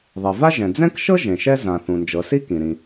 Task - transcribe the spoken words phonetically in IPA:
ðˤe˩va˥ʒɛ̃˩ d͡zɛ̃˥k ʃɤ˥ ʒẽ˩ʃɛ˥ zã˩ θũ˩nd͡ʒɤ˩ si˥kĩ˩ɾĩ˩

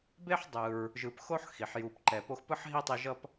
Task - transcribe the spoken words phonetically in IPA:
be˥ħdˤɯ˨ɹ | ʒɯ˨pxo˥ħ xi˩ħju˨pǃɛ˨ po˦xpɯ˥ħ ɦi˥tˤi˦ʒʌ˥p

